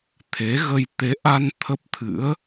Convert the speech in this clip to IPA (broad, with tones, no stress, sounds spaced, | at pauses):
t̪ʰ e˨˦ ɣ ə˧ j t̪ e˨˦ ʔ a˧ n t̪ʰ ə˦˥ p̚ t̪ʰ ɨ̰˧˥ ə̯